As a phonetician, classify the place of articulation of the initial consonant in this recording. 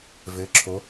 labial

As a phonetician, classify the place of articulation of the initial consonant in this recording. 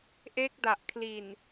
glottal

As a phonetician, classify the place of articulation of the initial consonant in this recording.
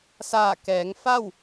alveolar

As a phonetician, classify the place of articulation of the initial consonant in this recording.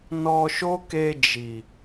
alveolar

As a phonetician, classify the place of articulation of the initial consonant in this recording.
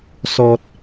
alveolar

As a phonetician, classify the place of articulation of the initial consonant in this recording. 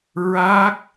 alveolar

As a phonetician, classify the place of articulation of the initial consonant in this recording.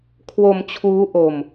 velar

